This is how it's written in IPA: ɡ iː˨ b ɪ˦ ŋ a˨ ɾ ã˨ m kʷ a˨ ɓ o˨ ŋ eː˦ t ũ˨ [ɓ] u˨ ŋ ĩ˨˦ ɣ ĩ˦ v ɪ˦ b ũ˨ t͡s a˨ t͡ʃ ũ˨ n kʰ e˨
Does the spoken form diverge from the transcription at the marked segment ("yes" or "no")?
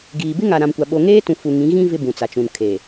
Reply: yes